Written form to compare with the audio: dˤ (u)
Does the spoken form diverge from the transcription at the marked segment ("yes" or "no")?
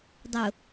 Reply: yes